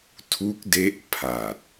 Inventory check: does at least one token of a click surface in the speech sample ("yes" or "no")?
no